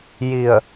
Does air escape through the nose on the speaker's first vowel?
no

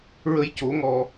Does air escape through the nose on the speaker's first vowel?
no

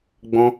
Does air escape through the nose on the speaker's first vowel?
yes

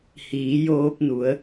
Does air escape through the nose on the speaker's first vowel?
no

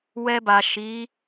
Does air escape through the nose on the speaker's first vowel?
no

